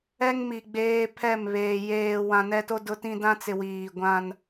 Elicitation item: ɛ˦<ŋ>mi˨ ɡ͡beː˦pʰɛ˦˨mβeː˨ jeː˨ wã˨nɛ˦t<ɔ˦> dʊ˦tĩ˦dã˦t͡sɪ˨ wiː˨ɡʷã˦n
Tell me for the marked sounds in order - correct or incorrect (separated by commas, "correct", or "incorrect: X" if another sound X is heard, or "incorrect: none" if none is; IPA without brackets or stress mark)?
correct, incorrect: o˦